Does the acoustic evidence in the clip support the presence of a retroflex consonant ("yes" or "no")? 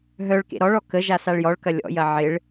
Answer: yes